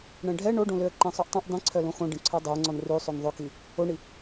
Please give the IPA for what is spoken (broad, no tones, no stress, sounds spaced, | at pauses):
ɳ ɛ̃ ɖʱ ɛ ɳ o ɖ õ l ø ə̯ ǃ ɛ̃ sˤ ø ʔ tˤ ɛ̃ ʔ dˤ ĩ ǀʰ œ l õ x õ ɖ ẽ ǀʰ ɔ dˤ o ŋ͡ǀ ɔ n r ʉ sˤ o n ðˤ ɵ k i | o ɳ i